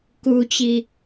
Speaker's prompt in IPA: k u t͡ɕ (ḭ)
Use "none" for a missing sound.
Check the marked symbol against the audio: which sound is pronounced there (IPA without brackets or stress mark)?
i